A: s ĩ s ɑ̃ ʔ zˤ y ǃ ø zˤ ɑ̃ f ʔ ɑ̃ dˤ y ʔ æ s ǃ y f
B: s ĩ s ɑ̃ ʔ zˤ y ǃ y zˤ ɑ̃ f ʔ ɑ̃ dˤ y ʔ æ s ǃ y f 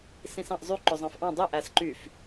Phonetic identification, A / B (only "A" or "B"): A